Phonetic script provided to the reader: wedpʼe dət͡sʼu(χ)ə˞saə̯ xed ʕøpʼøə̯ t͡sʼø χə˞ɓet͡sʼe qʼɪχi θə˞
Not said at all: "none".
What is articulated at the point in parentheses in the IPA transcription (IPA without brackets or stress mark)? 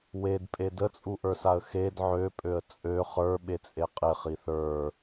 ʔ